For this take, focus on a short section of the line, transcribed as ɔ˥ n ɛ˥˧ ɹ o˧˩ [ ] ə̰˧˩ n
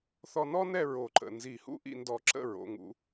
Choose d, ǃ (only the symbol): ǃ